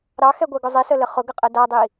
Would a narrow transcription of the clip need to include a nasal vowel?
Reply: no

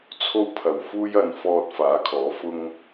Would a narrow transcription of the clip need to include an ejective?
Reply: no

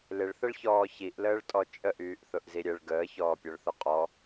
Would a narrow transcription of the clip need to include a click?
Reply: no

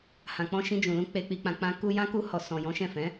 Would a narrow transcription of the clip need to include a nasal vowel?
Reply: yes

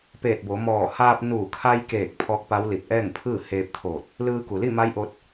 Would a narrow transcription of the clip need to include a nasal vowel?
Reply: no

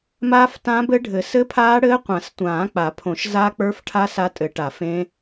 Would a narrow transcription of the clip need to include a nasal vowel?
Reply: yes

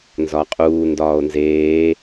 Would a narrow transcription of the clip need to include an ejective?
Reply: yes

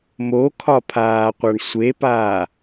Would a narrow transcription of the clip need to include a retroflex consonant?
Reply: yes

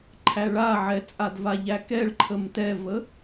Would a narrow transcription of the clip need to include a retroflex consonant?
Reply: yes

